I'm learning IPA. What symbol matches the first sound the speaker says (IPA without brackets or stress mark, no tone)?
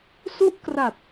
s